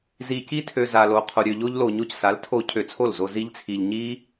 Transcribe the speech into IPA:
z i˧ c i˦ tʰ ø˧ z a˧ l o˧ qʰ o˧ ɾʲ ø˧ ʎ o˦ ʎ l o˧ ɲ o˧ c s a˨˦ l tʰ o˧ cʰ ø˧ t͡sʰ o˦˨ l z o˧ z i˦ ʎ t͡sʰ i˧ ʎ ɲ i˦

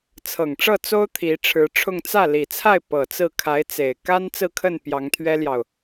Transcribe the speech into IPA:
t͡sʰ ɤ˨˩ ŋ ʈ͡ʂ ɤ˥˩ t͡s o˥ ʊ̯ t̪ʰ i˧˥ ʈ͡ʂʰ ɻ̩˧˥ ʈ͡ʂʰ ʊ˥˧ ŋ t͡s ä˥˩ l i˨˩ t͡sʰ a˥˩ ɪ̯ p ɤ˨˩ t͡s ɹ̩˥˩ kʰ a˧˥ ɪ̯ t͡s e˨˩ ɪ̯ k a˥ n t͡s ɹ̩˥˧ kʰ ə˥˩ n p j ɑ˧˥ ŋ t̪ʰ ɥ ɛ˥ l j ɑ˨ ʊ̯

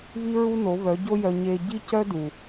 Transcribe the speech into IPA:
β i˦ ɹ u˦ n o˨˦ β œ˨˦ ɟ o˦ j œ˧ ɲ e˧ ɟ i˦ c œ˦ d u˨

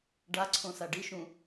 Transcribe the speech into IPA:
ɖ a ǀʰ õ s a ɖ i ʃ ũ

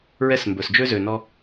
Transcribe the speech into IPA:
ɹ ɛ˥ s m b ɵ˩ s d͡ʒ ø˥ z ø˩ n ɔ˧

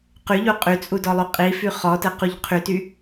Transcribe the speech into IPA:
q y ʎ u qʼ y t͡sʼ u d ɔ lˠ y qʼ i f y χ ɔ t ə q u ʎ qʰ y t y

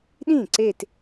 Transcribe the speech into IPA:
ɗ ĩ˥˩ ǀ e˥˧ t

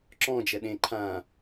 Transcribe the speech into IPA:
ǁ ɔ̃ d͡ʒ ɛ ɗ ẽ ǃʰ ã

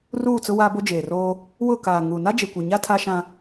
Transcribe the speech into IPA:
r uː˦˨ t͡s ʊ˦ w aː˦ b o˦ d͡ʒ eː˨ r oː˦ | w ʊ˦˨ k aː˨ ŋ u˨ n a˦ d͡ʒ e˨ kʷ i˨ ɲ a˦ tʰ a˦ ʃ ã˦

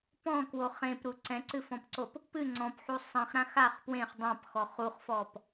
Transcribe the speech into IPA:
p ɔ̃ k w o χ ẽ p ɾ u ǀ ɛ̃ ǀ ɨ f ɔ̃ p ǀ o p | p ɨ ŋ͡ǀ ɔ̃ p ħ u sˤ ĩ χ ɾ ã x a χ p w ẽ χ dˤ ã p x ɔ χ u χ f ɔ p

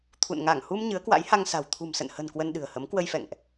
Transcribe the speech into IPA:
t̪ʰ ṵ˧˨ n ŋ a˧˩ ŋ h u˧ m ɲ ɨ˨˦ ə̯ k w a̰˧˥ j h a˧ ŋ s a̤˨˩ w t̪ʰ ṳ˨˩ m s ə̰˧˨ n h ə̤˨˩ n k w ə˧ n ɗ ɨ̤˨˩ ə̯ h ə˨˦ m k w ə˧ j f ɛ̰˧˨ ŋ ʔ

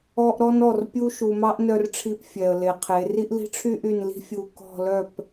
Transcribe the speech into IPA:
ɔ˦ ʔ ɾ ɔ˦ n ɔ˦˨ r pʲ u˦ ʃ u˨ m ɑ˦ ʔ n œ˦ r ʈ͡ʂʰ i˦ p fʲ ɛ˨ ə̯ l e˨ qʰ e˨˦ r i˦ ʔ l i̤˦ ʈ͡ʂʰ y˦ ʔ y˦˨ n l i̤˦ fʲ u˨ k ɔ̤˦˨ l œ˦˨ p

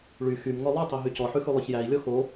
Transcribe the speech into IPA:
ɭ y x y m ŋ ɔ lˠ ʉ tˤ ɛ ɦ y c ɔ ħ ʉ x ʉ lˠ œ ç j æ i̯ lʲ ɔ x o

